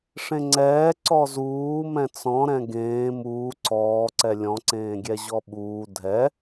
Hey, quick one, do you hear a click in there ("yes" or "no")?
yes